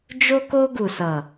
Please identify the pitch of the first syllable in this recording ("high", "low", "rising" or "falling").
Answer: high